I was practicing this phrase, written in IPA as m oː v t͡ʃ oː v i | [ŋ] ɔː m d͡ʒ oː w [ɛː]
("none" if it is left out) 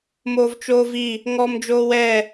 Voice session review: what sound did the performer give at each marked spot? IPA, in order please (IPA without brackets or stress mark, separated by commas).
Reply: ŋ, ɛː